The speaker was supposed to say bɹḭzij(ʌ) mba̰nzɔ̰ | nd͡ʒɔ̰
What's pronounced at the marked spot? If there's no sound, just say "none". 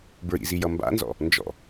ʌ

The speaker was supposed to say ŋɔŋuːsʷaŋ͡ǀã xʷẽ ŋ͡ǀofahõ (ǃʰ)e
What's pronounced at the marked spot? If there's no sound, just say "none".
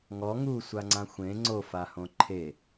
ǃʰ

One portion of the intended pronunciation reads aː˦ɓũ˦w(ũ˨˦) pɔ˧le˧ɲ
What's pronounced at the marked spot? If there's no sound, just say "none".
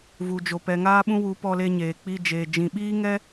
u˨˦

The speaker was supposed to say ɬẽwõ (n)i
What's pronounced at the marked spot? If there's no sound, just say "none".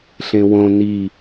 n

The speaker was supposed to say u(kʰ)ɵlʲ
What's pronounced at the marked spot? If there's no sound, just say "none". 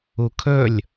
kʰ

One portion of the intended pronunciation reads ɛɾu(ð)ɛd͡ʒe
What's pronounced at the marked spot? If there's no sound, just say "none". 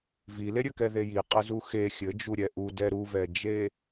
v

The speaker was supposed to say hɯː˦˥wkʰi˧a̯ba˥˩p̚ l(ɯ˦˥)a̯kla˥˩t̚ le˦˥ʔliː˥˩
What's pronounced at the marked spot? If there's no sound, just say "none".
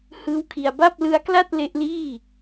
ɯ˦˥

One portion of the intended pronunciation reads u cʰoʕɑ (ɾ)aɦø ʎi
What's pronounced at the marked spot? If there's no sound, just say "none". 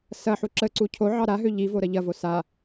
ɾ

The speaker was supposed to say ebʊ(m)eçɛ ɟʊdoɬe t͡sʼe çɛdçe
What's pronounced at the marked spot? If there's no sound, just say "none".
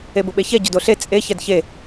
ɓ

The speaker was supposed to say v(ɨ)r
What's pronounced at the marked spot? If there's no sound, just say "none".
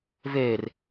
e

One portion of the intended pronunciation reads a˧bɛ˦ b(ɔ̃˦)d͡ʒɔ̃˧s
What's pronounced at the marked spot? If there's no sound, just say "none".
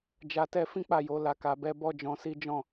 ɔ˦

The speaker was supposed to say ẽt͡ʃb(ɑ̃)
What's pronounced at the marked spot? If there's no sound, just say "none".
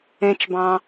ɑ̃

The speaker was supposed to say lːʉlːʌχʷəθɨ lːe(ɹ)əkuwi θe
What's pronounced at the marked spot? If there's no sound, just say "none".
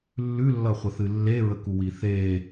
ɹ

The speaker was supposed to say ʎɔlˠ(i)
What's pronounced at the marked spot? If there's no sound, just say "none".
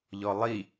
i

